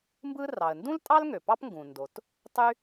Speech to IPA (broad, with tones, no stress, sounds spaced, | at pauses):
m b ɯ˥ r ɑ˩ ə̯ n d ũ˥ l tʼ ɑ˥ l ŋ ø˩ p ɑ˥ p ŋ ɡ ũ˩ n d o˩ t | tˤ y˥